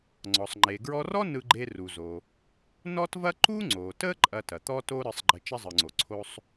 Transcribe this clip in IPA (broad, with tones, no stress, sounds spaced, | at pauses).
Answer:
ŋ͡ǀ ɔ˩ sˤ ŋ͡ǃ e˩ ɡ ɹ ɔ˧ r ɔ˥ n ɯ˧ ɡ͡ǃ e˧ r u˩ z o˩ | n ɔ˥ t v ɐ˥ ǃ u˥ ŋ͡ǀ o˩ t ə˥ ǃʼ ɐ˧ t ɐ˩ t̪ ɔ˥ t o˥ ɾ ɯ˧ sˤ ɡ͡ǃ ə˧ t͡ʃ ɐ˥ zˤ ɯ˩ ŋ͡ǀ o˩ ǀʰ o˧ sˤ